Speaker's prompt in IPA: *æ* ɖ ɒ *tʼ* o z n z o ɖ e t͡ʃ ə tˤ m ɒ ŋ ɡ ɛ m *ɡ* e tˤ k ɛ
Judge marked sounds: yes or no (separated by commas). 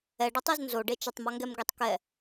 no, no, yes